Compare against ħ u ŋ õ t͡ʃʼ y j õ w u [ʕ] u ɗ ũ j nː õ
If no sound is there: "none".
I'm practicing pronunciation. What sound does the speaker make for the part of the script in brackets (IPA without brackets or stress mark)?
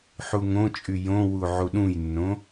ʕ